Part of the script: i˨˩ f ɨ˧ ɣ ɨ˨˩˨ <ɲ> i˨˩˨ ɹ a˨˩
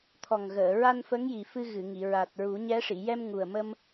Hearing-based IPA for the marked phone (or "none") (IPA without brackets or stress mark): ŋ